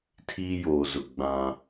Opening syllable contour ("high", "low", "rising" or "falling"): high